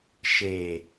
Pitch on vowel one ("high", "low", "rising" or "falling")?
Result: low